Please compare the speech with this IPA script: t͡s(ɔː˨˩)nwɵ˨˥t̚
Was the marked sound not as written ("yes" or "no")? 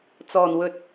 no